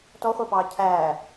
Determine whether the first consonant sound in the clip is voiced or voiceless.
voiceless